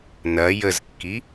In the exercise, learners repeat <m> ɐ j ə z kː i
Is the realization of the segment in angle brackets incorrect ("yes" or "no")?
yes